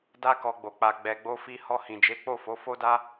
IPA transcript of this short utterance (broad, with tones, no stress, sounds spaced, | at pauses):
d a˧ k ɔ˧ ɡ͡b o˨ k͡p a˨ ɡ͡b ɛ˨ ɡ͡b o˧ f i˧ h ɔ˧ h ĩ˨ d͡ʒ e˨˦ k͡p o˦˨ f o˨˦ f o˦ d a˦